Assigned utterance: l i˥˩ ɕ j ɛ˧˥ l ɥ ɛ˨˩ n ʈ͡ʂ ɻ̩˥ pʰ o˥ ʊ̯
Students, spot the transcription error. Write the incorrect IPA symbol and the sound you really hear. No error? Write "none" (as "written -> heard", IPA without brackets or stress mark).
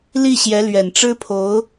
o˥ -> o˧˥